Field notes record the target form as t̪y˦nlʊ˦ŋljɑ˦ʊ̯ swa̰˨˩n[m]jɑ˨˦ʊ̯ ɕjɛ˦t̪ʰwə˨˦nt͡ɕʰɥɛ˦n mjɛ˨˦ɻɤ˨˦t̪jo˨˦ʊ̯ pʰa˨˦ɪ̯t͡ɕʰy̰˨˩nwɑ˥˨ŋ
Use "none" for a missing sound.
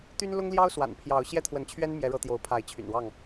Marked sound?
pʰ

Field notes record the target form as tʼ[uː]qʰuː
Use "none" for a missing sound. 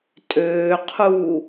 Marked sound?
øː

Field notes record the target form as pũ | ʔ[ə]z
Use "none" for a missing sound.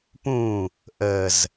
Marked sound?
ə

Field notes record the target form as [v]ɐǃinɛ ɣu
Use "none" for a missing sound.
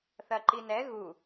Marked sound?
θ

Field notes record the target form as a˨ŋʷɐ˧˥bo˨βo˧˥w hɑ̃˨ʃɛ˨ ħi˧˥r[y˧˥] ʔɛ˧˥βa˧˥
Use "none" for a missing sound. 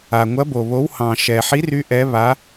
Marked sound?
y˧˥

